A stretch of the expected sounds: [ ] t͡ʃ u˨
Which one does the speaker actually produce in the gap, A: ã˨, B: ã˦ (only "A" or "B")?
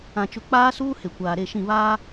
A